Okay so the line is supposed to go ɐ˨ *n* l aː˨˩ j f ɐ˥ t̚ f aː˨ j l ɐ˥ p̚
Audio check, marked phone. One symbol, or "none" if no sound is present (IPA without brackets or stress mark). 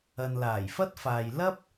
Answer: n